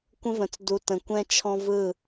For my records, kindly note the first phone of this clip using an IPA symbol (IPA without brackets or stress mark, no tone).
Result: kʷ